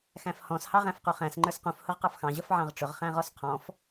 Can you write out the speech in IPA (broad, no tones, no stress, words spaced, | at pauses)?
xæ̃fhɔ̃s hɑʁæ̃fquχæ̃s ŋ͡ǃə˞sqũf hʊʁqɑfxɑ̃ ʑʌfʕɑ̃ʁʈ͡ʂʊʁ χæ̃ʁɔsqʰɔ̃f